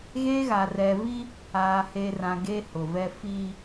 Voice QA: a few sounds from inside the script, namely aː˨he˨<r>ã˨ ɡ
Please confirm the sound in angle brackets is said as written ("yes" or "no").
yes